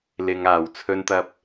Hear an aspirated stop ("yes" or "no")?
yes